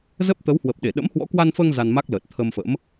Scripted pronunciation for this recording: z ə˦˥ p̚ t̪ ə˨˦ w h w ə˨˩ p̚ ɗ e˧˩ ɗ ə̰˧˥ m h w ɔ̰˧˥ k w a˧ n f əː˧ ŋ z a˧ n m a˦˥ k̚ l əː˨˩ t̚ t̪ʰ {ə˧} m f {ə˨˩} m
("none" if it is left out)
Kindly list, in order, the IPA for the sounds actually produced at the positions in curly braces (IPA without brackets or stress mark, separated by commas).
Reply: ə˧, ə̰˧˥